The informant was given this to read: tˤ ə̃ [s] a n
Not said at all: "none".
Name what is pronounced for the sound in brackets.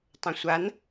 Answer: sʷ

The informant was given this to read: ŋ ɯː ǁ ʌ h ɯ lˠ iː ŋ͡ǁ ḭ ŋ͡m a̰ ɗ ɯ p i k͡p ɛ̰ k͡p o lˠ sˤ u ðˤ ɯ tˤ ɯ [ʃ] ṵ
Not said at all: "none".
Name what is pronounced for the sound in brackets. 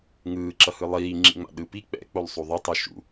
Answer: ʃ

